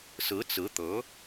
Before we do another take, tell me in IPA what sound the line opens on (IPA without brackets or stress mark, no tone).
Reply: s